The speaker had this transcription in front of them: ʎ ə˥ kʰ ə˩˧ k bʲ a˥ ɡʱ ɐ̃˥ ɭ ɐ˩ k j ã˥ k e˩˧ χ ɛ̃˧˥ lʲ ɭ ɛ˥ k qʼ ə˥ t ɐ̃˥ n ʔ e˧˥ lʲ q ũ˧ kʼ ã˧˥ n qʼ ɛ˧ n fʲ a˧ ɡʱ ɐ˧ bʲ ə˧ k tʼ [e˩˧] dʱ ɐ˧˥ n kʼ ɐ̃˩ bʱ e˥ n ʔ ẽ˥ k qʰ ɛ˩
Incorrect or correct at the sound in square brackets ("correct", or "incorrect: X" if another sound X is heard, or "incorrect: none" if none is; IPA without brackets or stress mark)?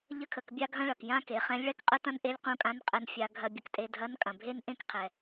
incorrect: e˧